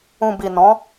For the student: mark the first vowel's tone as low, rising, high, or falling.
low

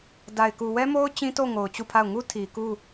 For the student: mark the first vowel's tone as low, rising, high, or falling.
low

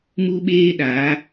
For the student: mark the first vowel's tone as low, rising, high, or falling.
high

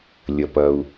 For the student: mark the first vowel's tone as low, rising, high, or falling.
low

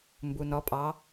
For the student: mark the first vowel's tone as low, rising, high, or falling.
low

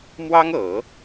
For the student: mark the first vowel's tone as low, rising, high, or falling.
high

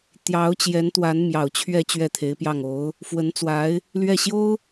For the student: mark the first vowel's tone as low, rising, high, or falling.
rising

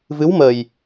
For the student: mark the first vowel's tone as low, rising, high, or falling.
rising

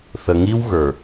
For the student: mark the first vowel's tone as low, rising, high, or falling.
low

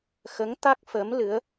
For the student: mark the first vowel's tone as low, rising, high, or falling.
rising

